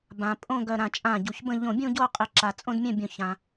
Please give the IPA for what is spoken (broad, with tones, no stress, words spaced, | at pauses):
bã˩ pʼõ˥˧ɡœ˧˩ ɾã˧˩t͡ʃʼã˧˩ɟu˩çbə̃˥˧ ʎõ˧˩bʲũ˥˧ɟo˥˧ qʼɪ˧˩ǁa˩t͡sʼõ˥˧d mʲɛ̃˥˧bʲõ˧˩çã˩